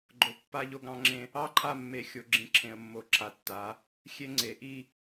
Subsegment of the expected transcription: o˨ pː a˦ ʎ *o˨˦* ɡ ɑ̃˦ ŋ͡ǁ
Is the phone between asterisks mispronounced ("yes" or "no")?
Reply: yes